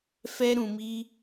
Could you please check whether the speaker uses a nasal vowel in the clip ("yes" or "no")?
yes